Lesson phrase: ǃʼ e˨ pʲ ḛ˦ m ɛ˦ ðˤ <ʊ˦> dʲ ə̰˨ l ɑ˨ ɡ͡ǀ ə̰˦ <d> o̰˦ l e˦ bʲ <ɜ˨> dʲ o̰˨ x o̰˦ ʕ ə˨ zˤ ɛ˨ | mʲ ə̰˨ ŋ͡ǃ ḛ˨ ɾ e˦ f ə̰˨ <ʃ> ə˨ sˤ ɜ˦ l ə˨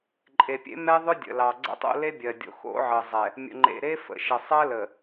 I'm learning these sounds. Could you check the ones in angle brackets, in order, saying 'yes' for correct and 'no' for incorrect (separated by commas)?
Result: yes, no, yes, yes